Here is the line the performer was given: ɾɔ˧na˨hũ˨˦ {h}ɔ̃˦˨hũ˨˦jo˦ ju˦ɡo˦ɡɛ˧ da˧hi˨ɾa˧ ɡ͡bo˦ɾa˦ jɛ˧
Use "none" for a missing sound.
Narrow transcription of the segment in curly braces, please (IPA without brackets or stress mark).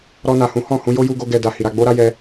h